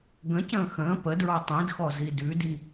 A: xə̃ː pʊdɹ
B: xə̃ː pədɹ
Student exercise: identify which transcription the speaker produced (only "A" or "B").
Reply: B